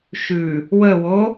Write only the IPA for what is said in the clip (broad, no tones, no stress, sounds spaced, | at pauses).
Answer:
ʃ ʉ | w ə w o